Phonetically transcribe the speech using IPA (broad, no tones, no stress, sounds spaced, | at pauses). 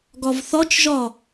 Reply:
ɡ ɒ v θ ɒ t͡ʃ ʒ ɒ